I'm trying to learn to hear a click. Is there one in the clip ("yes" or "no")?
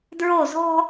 no